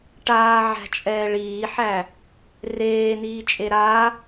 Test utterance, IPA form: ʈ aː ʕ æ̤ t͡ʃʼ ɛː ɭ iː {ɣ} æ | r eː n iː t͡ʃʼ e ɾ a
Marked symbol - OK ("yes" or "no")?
no